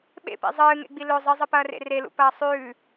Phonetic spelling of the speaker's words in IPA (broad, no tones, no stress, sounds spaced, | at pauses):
ɓ ḛ p ḛ zˤ ɨː ŋ ḛ ɡ͡b i l ɵ zˤ ɨ zˤ ɨ p ɐː r ḛ r e l ṵ p ɐː sˤ ʉː